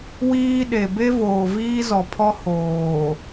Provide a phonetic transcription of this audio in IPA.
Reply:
w iː˦ ɗ e˨ b e˦ v oː˨ v iː˦ z ɔ˨ pʰ ɔ˦ h oː˨

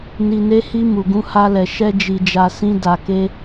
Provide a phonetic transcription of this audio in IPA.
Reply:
n i˧ n e˦ h i˦ m u˧ ɡ ũ˦ h a˦ l ɛ˧ ʃ ɛ˦ d͡ʒ i˧ d͡ʒ a˧ s ĩ˦ d a˧ k e˦

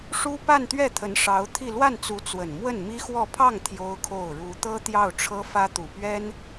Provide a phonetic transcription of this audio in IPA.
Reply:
ʂ u˥ p a˥˧ n t̪ ɥ ɛ˥˩ t̪ʰ ə˧˥ n ʂ ɑ˧˥ ʊ̯ t̪ʰ i˥˧ l w a˥˩ n t͡s u˧˥ t͡s w ə˨˩ n m w ə˥˩ n m i˥ x w ɔ˥˧ pʰ ɑ˥˩ ŋ t̪ʰ j o˥ ʊ̯ kʰ o˥˩ ʊ̯ ɻ u˧˥ t̪ ɤ˥ t̪ j ɑ˥˩ ʊ̯ ʈ͡ʂʰ ɤ˥ f ä˥ t̪ u˨˩ p ɥ ɛ˥ n

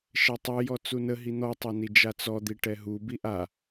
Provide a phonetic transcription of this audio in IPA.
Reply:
ʃ ɛ tˤ ɯ j ɔ t͡s u n ə ɦ i n̪ ɔ tˤ a n i d͡ʒ a t͡s ɔ d̪ i ʈ ɛ ɦ u b i ʔ a

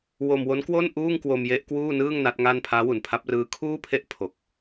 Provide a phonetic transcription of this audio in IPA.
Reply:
w o˧ m w o˦˥ n k w o˥˩ n ʔ uː˥˩ ŋ k w o˧ m j e˦˥ ʔ k w uː˥˩ n ɯː˥˩ ŋ n a˦˥ t̚ ŋ a˥˩ n pʰ aː˦˥ w u˨˩ n pʰ a˦˥ p̚ r ɯː˦˥ kʰ uː˥˩ pʰ e˥˩ ʔ pʰ o˨˩ k̚

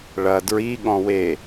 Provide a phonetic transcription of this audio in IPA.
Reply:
ɭ ɐ d ɹ i ɠ ɔ̃ w e

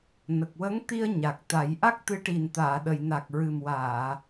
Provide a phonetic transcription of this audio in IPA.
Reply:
n ə˨˩ k̚ w ə˧˥ ŋ t̪ i˧ ə̯ ɲ a˨˩ k̚ t̪ a˨˩˦ j ʔ a˦˥ k̚ t̪ ɨ˧˥ ʈ i˨˩ n t̪ aː˨˩˨ ɗ ə˨˩˨ j n a˨˩ k̚ ɹ ɨ˨˩ m w aː˨˩˨

